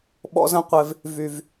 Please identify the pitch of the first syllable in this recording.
high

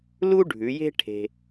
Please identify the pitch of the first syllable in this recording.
high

